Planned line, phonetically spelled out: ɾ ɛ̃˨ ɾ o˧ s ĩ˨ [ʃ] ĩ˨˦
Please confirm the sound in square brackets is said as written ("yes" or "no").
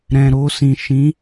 yes